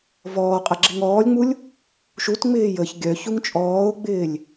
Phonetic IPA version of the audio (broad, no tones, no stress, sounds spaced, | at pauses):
v ɔː qʼ ɐ ɡ͡ǁ ɪ ŋ ɔː lʲ ŋ͡m u lʲ | ʃ u t ŋ͡m ɪː j ə ç ɡʲ œ ç u ŋ t͡ʃʼ ɔː ʊ̯ ɡ͡b ɪː lʲ